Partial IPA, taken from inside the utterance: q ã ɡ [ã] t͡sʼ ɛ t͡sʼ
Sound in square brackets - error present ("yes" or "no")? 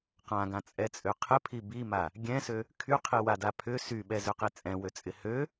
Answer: no